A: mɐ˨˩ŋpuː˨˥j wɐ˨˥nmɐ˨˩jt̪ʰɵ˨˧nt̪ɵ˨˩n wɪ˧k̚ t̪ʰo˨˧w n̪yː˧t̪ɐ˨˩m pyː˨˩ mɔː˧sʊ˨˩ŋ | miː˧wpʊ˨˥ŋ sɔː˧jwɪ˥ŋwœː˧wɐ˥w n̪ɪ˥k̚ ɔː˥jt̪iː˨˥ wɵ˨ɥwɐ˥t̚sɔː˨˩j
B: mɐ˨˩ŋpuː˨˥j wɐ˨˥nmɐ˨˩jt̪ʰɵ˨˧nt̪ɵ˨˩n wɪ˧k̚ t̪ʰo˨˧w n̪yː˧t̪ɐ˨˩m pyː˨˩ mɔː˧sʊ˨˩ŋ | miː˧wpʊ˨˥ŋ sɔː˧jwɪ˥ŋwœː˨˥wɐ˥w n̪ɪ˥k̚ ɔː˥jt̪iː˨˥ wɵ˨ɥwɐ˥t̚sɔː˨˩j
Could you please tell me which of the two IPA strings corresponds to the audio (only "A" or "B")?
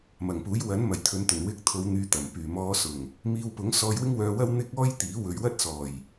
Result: A